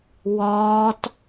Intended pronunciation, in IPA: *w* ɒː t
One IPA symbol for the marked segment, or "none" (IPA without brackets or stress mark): w